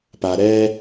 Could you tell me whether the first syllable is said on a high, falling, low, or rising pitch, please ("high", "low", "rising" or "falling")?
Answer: low